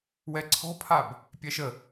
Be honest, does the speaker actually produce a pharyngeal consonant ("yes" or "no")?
no